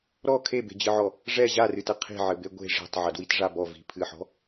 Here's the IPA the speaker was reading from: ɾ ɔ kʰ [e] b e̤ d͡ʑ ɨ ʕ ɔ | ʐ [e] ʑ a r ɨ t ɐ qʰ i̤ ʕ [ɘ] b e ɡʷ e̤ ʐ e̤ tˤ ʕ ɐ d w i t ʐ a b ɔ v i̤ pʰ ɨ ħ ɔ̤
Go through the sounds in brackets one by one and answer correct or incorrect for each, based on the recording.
correct, incorrect, correct

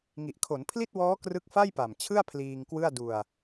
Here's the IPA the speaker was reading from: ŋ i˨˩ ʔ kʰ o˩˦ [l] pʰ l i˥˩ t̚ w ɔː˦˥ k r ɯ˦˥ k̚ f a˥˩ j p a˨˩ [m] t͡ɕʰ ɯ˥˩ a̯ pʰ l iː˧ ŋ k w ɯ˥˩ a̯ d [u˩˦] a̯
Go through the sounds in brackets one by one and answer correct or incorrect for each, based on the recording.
incorrect, correct, incorrect

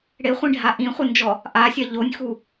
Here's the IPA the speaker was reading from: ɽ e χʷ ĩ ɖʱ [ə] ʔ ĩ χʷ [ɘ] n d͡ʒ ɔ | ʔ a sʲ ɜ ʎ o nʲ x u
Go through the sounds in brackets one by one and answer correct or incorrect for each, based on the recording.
incorrect, correct

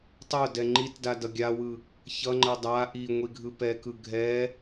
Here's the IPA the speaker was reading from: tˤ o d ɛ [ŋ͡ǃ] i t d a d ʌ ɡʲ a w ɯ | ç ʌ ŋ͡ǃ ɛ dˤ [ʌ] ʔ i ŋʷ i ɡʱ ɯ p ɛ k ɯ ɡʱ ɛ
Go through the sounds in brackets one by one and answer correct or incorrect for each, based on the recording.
correct, incorrect

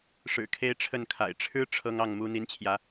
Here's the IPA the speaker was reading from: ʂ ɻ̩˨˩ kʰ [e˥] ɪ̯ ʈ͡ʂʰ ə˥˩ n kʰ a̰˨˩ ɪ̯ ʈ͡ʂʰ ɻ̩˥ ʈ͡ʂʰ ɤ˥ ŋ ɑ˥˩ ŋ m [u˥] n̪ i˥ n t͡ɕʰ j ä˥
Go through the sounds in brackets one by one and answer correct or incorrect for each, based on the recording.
incorrect, correct

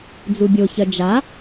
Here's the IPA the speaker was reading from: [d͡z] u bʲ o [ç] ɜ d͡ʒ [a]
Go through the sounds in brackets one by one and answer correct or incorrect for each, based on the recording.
correct, correct, correct

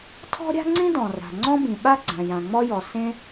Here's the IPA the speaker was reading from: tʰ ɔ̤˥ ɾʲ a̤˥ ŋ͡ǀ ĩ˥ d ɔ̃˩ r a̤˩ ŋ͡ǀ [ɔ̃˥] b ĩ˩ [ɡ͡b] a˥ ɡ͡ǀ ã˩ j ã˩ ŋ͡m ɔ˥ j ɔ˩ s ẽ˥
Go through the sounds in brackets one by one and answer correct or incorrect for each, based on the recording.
correct, incorrect

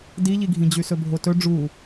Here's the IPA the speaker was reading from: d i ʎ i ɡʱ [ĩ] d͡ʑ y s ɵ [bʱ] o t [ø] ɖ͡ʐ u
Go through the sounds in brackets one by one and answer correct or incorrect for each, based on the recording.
correct, correct, incorrect

